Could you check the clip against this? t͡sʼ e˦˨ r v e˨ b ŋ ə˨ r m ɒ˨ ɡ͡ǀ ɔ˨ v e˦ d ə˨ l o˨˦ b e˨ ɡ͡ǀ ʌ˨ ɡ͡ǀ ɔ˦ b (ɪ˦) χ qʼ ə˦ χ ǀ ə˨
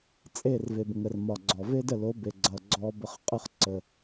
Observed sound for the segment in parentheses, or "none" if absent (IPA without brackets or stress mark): ə˦